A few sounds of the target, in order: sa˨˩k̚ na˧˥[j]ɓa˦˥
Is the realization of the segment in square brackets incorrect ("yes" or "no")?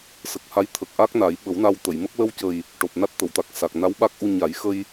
yes